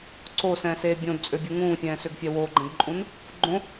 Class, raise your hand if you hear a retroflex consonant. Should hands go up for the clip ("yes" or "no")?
no